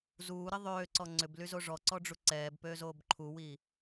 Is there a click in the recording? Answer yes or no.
yes